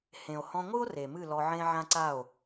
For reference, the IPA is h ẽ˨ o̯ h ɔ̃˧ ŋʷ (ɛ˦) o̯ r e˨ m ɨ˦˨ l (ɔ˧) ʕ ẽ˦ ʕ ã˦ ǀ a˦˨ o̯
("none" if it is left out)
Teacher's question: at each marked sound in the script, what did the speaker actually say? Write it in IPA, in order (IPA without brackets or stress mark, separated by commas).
ɨ˦, ɔ˧